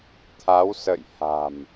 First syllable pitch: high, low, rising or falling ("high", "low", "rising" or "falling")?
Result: rising